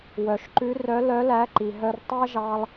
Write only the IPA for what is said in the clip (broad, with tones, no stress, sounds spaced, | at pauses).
w œ˩ ʃ ǃ ʉ˧˥ r œ˧˥ l œ˧˥ l æ˧˥ ǃ i˩ ɦ œ˧ r tˤ æ˥ ʒ ɑ˧ lˠ